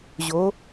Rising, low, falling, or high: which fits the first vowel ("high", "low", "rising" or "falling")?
rising